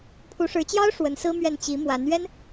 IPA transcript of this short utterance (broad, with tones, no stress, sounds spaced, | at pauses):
pʰ u˧˥ ʂ ɻ̩˧˥ t͡ɕ j ɑ˥ ʊ̯ ʂ w ə˧˥ n s ɹ̩˥ m ɥ ɛ˥˩ n t͡ɕ i˧˥ m w a˧˥ n ɥ ɛ˥ n